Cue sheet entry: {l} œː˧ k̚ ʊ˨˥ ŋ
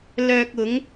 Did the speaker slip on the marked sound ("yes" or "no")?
no